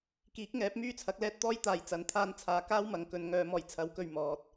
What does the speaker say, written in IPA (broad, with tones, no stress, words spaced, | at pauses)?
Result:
kiː˨˥k̚ŋɛː˨˥p̚ myː˥t͡sʰɐ˨˥k̚lɛː˥t̚ t̪ɔː˥jt̪aː˨jt͡sɐ˨˥n t̪ʰaː˧nt͡sʰaː˨kaː˥w mɐ˨˥ŋkɵ˨˧nŋœː˧ mɔː˨˩jt͡sʰɐ˨˥wkɵ˨ɥ mɔː˨t̚